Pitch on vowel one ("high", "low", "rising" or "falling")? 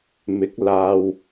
rising